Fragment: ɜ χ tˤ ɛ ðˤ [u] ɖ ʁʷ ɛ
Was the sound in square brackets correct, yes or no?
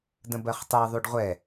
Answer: yes